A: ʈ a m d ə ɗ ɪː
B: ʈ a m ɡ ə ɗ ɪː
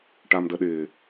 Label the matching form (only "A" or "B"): A